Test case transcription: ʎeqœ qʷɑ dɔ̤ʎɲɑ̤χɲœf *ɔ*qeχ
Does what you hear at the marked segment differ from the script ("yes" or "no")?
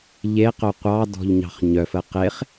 yes